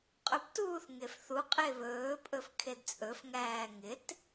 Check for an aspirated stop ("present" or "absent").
present